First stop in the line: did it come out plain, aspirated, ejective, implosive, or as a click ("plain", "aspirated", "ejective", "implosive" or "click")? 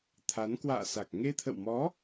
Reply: aspirated